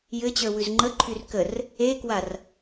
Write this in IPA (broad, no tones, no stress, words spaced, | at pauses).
jɘt͡ɕə˞ wʉzŋ͡ǃəǃʰyr kər | ekwar